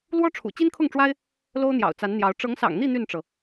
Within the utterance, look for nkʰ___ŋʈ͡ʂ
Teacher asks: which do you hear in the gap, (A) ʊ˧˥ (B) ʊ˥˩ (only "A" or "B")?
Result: B